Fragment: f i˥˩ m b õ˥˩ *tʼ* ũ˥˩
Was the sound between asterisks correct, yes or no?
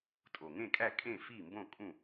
no